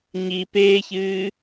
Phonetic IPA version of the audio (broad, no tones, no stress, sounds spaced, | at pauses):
ɲ i p eː ç ɨː